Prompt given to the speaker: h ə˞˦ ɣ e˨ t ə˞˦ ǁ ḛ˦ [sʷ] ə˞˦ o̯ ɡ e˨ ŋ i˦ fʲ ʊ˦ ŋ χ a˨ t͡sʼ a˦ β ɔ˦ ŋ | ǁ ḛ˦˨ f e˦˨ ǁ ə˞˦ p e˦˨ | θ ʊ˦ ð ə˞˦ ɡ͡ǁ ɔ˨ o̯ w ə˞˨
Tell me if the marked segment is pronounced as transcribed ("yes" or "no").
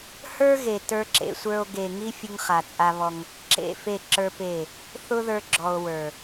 yes